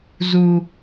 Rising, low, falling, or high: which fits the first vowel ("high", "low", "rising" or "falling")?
high